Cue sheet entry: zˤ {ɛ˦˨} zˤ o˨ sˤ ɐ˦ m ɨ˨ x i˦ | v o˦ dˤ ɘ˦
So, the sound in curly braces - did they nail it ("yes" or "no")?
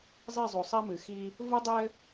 yes